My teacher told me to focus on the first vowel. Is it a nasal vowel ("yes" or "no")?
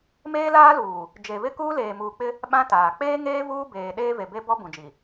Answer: no